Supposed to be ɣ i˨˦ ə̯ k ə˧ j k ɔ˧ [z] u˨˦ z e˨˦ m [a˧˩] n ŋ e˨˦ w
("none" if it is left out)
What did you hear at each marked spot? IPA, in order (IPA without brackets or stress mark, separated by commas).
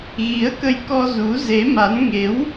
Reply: z, a˨˦